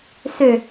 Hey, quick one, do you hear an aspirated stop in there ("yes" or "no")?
no